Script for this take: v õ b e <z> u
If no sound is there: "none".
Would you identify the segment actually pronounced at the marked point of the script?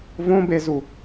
z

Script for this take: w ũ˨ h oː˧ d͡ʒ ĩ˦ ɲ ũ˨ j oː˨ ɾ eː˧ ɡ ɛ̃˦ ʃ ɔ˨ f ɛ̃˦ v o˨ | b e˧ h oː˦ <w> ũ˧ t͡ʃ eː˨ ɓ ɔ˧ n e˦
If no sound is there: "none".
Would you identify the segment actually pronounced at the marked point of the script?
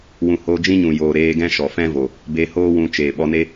w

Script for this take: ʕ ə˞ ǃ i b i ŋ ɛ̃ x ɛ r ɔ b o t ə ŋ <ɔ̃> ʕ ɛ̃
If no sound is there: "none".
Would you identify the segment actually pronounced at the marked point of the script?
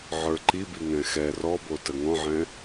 ɔ̃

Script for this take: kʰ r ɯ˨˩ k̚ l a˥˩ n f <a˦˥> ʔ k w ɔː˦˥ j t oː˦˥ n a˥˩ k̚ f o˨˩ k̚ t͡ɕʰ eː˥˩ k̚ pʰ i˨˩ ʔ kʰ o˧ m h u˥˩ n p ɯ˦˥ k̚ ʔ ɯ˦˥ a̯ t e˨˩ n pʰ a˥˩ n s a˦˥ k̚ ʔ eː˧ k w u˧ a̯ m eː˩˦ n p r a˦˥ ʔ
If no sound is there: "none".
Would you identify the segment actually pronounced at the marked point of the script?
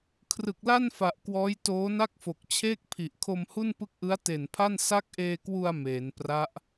a˨˩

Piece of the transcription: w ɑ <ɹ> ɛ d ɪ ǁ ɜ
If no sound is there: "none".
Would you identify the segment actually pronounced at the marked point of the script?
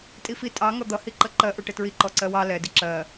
l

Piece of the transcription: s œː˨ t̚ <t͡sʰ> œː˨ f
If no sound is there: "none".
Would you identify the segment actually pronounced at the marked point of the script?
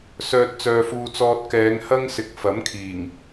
t͡s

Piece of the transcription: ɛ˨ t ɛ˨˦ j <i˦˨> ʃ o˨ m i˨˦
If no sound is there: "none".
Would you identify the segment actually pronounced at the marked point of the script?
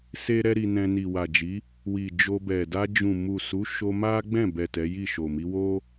i˦˨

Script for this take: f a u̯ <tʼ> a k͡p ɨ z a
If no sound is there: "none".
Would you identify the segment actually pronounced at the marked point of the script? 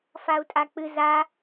tʼ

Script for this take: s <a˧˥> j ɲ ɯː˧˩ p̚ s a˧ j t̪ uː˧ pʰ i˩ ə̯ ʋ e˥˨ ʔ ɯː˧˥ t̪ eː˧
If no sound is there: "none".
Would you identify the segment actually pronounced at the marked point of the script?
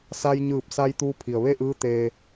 a˧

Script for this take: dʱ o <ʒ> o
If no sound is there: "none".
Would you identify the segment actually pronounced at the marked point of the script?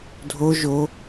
ʒ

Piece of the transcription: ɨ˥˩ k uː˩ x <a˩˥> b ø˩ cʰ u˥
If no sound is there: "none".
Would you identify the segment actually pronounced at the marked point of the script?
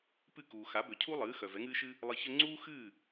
a˩˥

